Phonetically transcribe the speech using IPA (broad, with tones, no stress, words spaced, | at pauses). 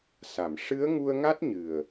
sa˨˩˨m ʂɨ˧˥ə̯ ŋu˧ə̯ŋa˦˥t̚ɲɨ˨˩ə̯